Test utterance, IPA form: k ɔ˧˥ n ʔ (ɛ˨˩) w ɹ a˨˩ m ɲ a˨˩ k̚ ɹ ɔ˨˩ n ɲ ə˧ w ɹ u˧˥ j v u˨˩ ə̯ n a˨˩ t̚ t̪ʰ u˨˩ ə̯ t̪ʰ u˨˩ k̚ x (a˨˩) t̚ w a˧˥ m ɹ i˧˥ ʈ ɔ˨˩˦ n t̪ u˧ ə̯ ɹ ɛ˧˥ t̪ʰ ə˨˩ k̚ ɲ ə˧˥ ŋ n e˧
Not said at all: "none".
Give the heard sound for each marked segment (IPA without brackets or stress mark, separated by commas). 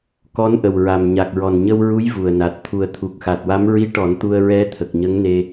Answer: ə˨˩, a˨˩